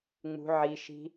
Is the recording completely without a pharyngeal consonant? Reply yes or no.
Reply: no